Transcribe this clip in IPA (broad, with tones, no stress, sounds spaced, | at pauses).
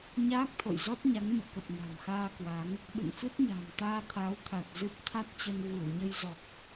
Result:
ɲ aː˦˥ k̚ t̪ʰ o̰˧˨ j z ɔ˦˥ t̚ ɲ a˨˦ ŋ m ɨ̰˧˨ k ə˨˩ p̚ n a̤˨˩ m x aː˧ k w a˨˦ ŋ | ɓ ɨ̰˧˨ n f ɨ˦˥ t̚ ɲ a̤ː˨˩ m t̪ aː˧ t̪ʰ a˨˦ w t̪ʰ a˨˩ t̚ z ɨ˦˥ p̚ t̪ʰ a˦˥ t̚ t͡ɕ ə˧ n ɣ ɨ˧˩ w ɲ ə˧ j z ɔ˨˩ k̚